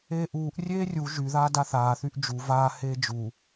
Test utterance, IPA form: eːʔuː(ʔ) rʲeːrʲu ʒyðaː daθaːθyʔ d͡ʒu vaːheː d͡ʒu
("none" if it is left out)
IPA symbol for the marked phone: ʔ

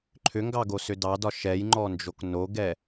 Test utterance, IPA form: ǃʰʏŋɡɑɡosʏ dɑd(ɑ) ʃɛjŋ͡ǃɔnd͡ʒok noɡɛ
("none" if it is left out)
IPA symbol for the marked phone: ɒ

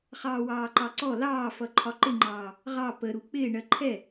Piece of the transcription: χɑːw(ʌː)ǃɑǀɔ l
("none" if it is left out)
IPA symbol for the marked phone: ɑː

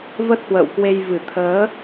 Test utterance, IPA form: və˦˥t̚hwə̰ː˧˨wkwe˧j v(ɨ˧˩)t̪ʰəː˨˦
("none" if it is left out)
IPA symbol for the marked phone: ɨ˧˩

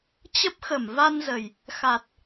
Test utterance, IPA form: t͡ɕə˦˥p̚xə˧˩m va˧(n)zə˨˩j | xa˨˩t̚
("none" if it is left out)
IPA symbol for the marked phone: n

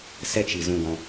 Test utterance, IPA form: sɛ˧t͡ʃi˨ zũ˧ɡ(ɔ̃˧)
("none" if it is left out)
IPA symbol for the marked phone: ɔ̃˧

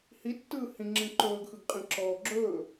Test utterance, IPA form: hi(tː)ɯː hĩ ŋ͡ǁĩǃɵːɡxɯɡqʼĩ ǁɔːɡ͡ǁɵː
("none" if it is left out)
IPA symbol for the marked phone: tː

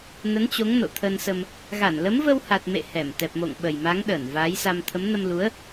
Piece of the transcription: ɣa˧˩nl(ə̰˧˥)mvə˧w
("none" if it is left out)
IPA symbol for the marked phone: ə˨˦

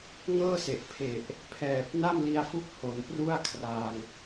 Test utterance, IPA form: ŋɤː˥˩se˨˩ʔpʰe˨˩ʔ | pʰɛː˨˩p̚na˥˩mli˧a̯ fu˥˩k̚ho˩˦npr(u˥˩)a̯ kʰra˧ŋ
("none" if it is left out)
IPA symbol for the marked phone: u˥˩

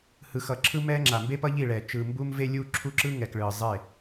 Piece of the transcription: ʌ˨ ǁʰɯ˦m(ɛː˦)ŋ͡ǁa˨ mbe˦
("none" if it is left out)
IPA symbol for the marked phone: ɛː˦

